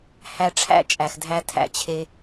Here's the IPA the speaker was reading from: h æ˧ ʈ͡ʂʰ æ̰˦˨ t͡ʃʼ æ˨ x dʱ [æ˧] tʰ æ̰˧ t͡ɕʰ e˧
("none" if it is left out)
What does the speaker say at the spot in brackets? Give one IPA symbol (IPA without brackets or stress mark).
æ˧